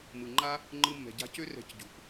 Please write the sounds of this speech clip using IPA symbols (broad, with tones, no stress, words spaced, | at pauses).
mɯ˨ŋ͡ǃa˦ | ŋ͡ǃɯ˧mːɛ̤˨ɟa̤˧cø˦ rɛ̤˧cɟṳ˨p